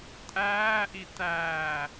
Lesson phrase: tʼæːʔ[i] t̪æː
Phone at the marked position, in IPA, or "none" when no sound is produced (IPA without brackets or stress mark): i